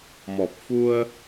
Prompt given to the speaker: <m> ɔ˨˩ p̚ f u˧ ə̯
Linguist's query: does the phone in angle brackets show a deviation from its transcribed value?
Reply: no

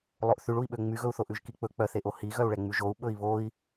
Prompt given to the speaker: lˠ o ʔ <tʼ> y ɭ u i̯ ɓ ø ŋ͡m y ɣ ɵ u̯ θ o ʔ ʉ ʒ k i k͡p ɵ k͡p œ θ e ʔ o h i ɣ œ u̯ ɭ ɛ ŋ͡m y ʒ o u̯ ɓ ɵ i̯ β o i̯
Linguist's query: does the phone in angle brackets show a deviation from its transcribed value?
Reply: yes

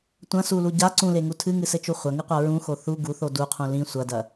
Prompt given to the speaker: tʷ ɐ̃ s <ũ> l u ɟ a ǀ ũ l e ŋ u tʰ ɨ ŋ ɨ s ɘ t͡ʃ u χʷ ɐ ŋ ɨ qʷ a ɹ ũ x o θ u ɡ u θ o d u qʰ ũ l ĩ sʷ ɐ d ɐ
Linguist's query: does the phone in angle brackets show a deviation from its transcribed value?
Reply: yes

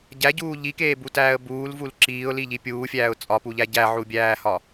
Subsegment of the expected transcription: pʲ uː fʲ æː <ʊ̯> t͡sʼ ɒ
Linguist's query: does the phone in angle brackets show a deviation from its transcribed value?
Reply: no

